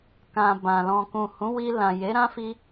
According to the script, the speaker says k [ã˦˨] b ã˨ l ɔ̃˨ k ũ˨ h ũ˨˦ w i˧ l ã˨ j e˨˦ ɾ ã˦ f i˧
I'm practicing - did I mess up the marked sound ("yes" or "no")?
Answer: yes